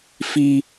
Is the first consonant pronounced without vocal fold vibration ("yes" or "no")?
yes